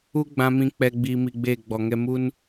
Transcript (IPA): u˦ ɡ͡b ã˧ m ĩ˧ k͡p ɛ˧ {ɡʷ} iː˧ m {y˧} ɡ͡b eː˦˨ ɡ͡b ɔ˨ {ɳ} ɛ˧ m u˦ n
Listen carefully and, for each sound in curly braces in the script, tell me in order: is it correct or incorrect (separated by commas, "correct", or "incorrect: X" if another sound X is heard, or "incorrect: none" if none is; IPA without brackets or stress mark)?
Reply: incorrect: ɡ͡b, incorrect: i˧, incorrect: ŋ